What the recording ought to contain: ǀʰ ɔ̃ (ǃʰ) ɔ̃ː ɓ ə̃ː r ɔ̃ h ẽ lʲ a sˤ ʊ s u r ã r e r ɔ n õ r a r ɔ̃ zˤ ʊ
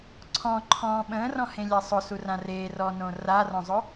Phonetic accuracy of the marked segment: correct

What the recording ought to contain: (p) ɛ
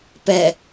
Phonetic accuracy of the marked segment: correct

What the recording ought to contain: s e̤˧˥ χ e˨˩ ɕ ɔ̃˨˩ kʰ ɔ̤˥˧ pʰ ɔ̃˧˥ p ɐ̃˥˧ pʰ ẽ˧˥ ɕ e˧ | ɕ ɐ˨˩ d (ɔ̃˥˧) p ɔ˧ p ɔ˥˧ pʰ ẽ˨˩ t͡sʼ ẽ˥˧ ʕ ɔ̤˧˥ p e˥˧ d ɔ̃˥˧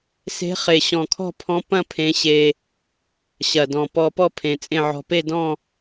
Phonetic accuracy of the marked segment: incorrect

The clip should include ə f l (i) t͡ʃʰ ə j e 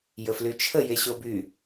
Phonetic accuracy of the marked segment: incorrect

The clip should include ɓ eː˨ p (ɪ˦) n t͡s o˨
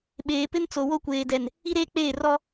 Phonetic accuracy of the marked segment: correct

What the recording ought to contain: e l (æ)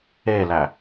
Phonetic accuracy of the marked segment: correct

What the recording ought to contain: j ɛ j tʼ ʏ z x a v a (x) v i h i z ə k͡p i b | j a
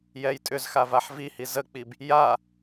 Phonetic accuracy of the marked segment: incorrect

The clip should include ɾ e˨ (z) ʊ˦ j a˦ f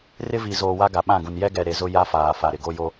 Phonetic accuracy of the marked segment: correct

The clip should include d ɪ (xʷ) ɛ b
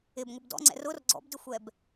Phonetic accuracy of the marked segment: correct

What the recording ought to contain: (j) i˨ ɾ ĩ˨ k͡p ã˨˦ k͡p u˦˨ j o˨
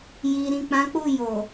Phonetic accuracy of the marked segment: correct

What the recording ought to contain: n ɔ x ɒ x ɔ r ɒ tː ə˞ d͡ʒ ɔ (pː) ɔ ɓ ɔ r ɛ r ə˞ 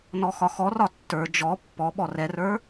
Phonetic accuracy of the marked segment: correct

